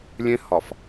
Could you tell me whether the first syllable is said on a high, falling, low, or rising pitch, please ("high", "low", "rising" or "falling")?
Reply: high